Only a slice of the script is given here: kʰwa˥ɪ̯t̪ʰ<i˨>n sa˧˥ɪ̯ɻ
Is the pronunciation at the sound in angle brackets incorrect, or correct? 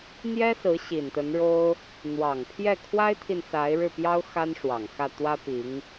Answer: correct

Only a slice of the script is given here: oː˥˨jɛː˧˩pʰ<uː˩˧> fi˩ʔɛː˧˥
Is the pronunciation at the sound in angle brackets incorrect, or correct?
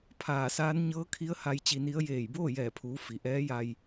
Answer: correct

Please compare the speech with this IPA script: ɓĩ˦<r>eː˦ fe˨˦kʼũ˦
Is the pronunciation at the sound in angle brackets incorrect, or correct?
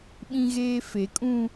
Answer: incorrect: ɣ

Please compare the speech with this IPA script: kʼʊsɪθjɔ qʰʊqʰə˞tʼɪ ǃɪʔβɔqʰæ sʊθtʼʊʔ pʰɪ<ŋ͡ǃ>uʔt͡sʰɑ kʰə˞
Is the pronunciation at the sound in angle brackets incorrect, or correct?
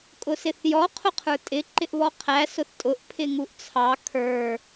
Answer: incorrect: ŋ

